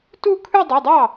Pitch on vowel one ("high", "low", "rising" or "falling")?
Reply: falling